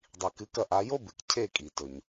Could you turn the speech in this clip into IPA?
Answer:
dˤi˩kɨ˩˥kɐ˧ʔa˩˥ jo˥bɨ˩k cʰe˥˩kʼi˩tɵ˩ɲ

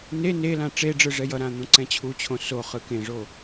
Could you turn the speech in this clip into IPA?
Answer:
ne ne lãʈ͡ʂeɖ͡ʐɯ ʐɛjʌɾã n̪õǀɛ̃t͡ɕʰut͡ɕʰõ soχɯ kẽʐo

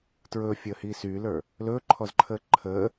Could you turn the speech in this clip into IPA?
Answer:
tɹɵːfʲəːhiː syːlə˞ | lɵːǃʰɔzǃʰəː ǃʰəː

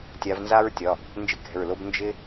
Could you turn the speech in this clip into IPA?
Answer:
tʲa˨˦vnza˥ɹtʲɒ˩˧˩ | nd͡ʒɪ˥kɛ̤˩˧˩ɹlo˥b nd͡ʒɪ˥

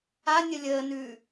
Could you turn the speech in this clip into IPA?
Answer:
anʲə lʲəːnʉː

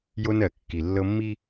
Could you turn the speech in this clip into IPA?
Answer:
jo˦nɜ˨kːi˨ lːɤ˦mːi˦

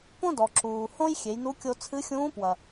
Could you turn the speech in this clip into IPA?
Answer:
põ˥dɔ˩ ǁuː˩ hõ˥j xʲe˩˧jnu˧˥ kʲo˧t͡sʰɨ˧˥xʲũː˧˥pwɐ˩

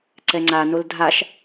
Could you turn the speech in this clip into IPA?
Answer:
ǀɛŋ͡ǀanol dʱaʃ

